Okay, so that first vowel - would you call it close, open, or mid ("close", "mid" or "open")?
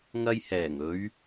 open